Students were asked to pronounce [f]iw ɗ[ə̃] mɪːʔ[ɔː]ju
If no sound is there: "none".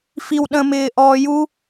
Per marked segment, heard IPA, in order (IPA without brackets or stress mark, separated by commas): f, ə̃, ɔː